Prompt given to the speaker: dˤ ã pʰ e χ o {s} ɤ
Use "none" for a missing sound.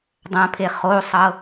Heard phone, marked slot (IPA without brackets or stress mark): sˤ